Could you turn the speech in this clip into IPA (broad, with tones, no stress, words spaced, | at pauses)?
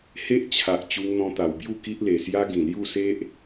he˦ʔt͡ɕʰa˨ʔ t͡ɕu˧ŋn̪ɔ̃˧ t̪a˨˩wbju˥˧ ki˦ʔle˨˩sja˦ ɡĩ˨˩lju˥˧se˦ʔ